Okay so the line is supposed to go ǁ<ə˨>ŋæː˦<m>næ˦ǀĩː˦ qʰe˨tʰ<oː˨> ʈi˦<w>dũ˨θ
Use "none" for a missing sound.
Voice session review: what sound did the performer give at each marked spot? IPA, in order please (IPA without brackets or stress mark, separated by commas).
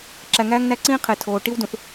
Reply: æ˨, ŋ, oː˨, w